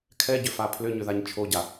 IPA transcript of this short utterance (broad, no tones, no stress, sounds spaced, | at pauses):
kʰ ɛ ɟ ʏ f a pʰ l ʏ ɲ ʏ ð a ɲ t͡ʃʰ o ɟ a